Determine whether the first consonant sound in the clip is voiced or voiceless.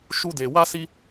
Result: voiceless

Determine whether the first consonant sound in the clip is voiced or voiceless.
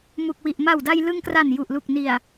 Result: voiced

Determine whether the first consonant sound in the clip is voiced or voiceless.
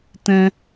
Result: voiceless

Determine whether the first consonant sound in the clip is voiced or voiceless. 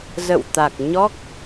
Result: voiced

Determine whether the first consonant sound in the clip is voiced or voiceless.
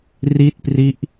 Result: voiced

